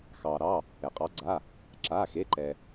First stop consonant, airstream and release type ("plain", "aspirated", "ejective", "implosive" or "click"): ejective